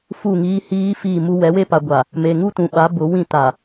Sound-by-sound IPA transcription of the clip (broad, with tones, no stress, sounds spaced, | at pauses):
f u˦˨ ŋ iː˦ h iː˦ f iː˦˨ m u˦ w ɛ˨˦ w e˦ p a˨ ɡʷ a˨ | m e˨ ŋ u˦ t ũ˨ ɓ a˨˦ b ʊ˨˦ w ĩ˦˨ t a˨